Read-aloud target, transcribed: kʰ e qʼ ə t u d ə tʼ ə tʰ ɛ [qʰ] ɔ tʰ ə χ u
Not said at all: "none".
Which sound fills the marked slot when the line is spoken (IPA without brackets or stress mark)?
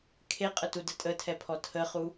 pʰ